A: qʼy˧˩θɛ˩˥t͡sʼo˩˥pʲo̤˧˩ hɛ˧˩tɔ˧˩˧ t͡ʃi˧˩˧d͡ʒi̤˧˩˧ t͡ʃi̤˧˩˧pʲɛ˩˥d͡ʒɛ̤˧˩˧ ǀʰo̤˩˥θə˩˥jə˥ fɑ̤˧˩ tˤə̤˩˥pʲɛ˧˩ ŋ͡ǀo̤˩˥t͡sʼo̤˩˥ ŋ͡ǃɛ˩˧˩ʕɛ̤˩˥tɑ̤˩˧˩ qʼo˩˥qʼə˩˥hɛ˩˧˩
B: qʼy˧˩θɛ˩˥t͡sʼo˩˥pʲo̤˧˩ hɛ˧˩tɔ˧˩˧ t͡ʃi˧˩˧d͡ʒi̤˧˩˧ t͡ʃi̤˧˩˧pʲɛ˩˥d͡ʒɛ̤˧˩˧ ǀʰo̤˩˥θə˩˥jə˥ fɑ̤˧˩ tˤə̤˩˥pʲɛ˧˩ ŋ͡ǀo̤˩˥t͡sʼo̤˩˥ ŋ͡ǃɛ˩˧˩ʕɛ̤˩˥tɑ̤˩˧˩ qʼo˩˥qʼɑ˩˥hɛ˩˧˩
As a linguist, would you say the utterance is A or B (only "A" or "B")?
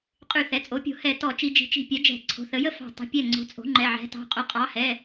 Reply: B